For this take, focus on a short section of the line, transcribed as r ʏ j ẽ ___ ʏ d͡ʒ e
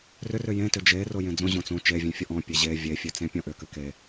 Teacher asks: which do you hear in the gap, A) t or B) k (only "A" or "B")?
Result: A